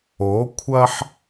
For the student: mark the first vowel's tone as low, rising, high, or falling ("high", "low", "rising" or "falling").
rising